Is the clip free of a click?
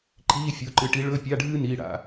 no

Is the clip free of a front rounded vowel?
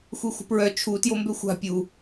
no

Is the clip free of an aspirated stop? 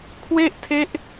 no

